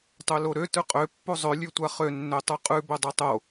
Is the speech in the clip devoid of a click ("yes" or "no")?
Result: yes